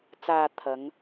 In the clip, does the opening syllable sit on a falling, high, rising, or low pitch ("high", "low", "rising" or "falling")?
low